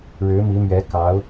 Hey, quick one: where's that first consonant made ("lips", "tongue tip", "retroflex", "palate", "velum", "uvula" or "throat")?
retroflex